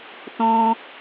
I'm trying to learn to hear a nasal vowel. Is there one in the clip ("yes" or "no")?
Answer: yes